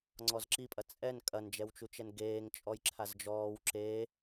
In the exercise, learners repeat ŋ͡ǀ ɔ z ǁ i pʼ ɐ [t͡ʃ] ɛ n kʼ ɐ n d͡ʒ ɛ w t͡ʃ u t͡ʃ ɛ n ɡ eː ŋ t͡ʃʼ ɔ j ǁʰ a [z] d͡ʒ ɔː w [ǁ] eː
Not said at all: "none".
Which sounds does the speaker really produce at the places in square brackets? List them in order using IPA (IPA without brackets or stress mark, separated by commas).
t͡sʼ, z, ǁ